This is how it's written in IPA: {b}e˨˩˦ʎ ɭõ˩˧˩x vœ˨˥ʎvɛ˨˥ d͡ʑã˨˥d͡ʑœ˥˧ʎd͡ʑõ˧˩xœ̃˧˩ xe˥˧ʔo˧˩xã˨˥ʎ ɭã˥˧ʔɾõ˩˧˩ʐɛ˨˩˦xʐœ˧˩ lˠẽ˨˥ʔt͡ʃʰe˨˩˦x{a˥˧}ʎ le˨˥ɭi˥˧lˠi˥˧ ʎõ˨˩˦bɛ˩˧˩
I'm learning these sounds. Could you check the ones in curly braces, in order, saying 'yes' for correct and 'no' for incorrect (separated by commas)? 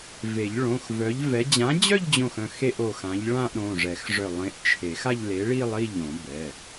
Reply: no, yes